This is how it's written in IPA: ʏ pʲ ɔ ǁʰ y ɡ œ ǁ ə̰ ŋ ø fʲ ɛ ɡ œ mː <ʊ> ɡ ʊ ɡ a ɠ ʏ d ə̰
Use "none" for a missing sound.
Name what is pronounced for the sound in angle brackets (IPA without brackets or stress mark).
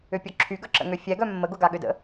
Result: ə